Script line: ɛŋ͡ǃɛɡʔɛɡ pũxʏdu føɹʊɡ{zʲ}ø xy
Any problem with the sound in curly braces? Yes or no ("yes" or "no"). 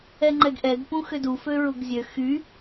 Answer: no